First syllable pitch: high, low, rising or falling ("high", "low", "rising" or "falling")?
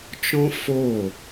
high